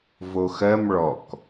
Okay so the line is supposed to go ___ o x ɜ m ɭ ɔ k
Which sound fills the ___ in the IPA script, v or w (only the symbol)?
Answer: v